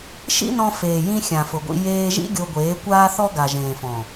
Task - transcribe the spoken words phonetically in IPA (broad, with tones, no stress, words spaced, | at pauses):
ʃḭ˦nɔ̃˧ feː˨jĩ˧ xʲã˨fʊ˨ɡʷḭ˧ jeː˧ʒḭ˦ ɡʲo˧ɡʷeː˨˦kʷaː˦θɔ˦ ɡa˨ʒẽː˨fɔ̃˨